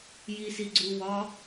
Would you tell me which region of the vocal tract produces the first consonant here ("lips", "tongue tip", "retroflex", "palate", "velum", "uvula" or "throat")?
palate